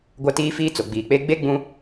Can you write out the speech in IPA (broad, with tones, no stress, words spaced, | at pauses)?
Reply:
ɡʷa˦tiː˦fiː˦t͡so˨ ɡ͡biː˨k͡pe˦ ɡ͡be˦ ɡ͡bũ˦